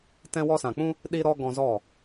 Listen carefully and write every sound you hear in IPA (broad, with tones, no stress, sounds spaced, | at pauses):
t ɛ̃˧ w ɔ˧ s ã˨ k͡p ũ˦ | ɗ i˧ ɾ ɔ˧ ɡ ɔ̃˧ z ɔ˦˨